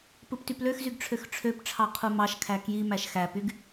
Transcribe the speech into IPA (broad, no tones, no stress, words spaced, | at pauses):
pɯptypløxzyɡ ʈ͡ʂʰøxʈ͡ʂʰøpʈ͡ʂʰɑ qʰumɑʃkʰæ kji mæʃxæpyɡ